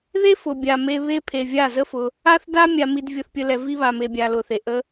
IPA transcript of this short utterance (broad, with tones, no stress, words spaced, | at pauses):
ðe˦fʊ˨ bʲa˨me˧ βe˧pʰe˨ vʲa˦˨zə˦fʊ˧ | a˦θ da˦ mʲa˧mi˧d vʲʊ˧θpʲə˧ lɛ˨vi˧ βa˨me˨bʲa˨ lʊ˨θe˨ ʔə˧